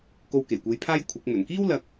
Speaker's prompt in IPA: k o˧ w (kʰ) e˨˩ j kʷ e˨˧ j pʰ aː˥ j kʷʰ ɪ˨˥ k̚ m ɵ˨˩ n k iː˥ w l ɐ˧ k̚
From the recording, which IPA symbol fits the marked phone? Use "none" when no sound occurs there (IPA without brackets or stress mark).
k